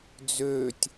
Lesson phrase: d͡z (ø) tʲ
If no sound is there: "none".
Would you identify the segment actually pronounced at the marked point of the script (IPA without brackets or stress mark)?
ø